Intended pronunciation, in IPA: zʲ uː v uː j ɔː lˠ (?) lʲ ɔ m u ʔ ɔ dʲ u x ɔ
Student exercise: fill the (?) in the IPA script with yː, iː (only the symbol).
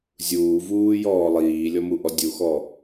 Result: iː